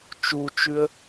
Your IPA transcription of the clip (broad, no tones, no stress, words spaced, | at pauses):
t͡ʃut͡ʃʉə̯